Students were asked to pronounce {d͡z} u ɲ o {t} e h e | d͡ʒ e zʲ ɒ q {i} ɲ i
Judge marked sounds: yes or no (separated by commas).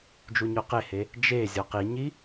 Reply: no, no, yes